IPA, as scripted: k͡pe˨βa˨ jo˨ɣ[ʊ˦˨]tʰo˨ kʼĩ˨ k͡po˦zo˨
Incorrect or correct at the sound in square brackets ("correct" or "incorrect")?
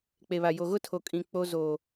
incorrect